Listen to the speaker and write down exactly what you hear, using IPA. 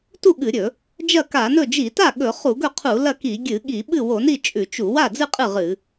tu˥˩ɠɨ˧˩˧ɾʲɵ˧˩˧ | d͡ʒɐ˥˩ka˧˩˧nɵ˥˩ d͡ʒi˧˩˧ta˥˩ ɠɵ˧˩˧ χu˧˩˧ɡɵ˥˩qʰu˧˩˧ lɐ˥˩ki˧˩˧ ɡʲɨ˧˩˧ɠi˧˩˧ ɓɨ˥˩wo˧˩˧ni˥˩ t͡ʃʼʉ˧˩˧t͡ʃu˧˩˧ wa˥˩d͡zɨ˥˩ qʼɨ˥˩ ʁɨ˧˩˧

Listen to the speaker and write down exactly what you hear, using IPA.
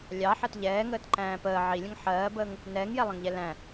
lʲɑ ħɜtʎɛːŋəːt ǃæ̃ːpəː ʕilʲə̃ŋ ħɜːbəːŋ | nɛːŋjɛlˠə̃ŋʎɛ læ̃

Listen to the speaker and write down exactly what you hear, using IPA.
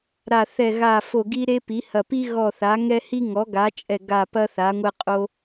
ɾa˧˩θɛ˧˩ ɣa˧˩fo˧˩ ɡi˦ɾe˦ pi˩˥hɐ˧˩ pi˦ ɣɔ˧˩θa˩˥ŋɛ˦ hi˦ŋɔ˩˥ɡa˩˥t͡ʃʼɛ˧˩ ɡa˧˩pɐ˦ θa˩˥ŋʷɛ˦qʼo˦

